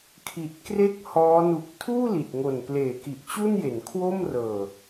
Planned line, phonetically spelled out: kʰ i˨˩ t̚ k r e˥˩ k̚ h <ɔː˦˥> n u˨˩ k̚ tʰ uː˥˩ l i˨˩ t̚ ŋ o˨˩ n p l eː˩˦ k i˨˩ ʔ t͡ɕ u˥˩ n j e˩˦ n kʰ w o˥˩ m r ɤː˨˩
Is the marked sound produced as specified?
yes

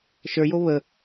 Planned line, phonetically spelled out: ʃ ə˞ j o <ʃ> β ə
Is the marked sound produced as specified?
no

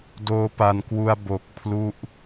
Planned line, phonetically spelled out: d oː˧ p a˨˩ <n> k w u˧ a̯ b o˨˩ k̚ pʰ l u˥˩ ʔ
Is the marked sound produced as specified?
yes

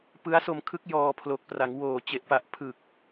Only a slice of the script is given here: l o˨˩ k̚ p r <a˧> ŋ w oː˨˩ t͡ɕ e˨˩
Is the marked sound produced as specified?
no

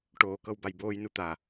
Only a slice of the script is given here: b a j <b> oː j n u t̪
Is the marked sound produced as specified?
yes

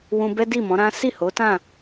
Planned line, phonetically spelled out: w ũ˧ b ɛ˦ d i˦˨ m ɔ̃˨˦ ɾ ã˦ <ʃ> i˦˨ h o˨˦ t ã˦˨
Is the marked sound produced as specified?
no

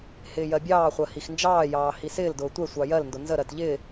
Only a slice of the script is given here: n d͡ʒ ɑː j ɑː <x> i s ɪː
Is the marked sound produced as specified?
no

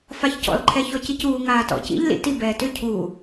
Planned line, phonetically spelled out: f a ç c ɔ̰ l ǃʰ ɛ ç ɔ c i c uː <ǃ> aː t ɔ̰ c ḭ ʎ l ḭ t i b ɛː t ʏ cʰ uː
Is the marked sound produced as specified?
no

